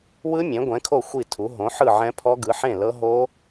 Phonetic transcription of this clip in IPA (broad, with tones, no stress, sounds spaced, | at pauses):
w ɯ˦˥ mʲ ẽ˩˥ ɡʷ ɛ̃˩˥ kʰ o˥˩ xʷ i˥˩ tʰ u˩˥ ɦ õ˩˥ ħ ɯ˥˩ ʕ ɛ̃˦˥ pʰ ɔ˦˥ ɡ ɯ˩˥ ħ ẽ˥˩ l ɤ˦˥ ɦ o˦˥